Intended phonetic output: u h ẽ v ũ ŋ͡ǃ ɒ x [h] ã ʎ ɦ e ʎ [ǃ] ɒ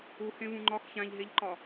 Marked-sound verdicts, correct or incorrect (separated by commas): incorrect, correct